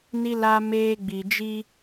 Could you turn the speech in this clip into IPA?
ni˦la˦meː˦ ɡ͡bi˨d͡ʒi˦

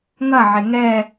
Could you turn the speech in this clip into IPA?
ŋɐʕe ŋɛ

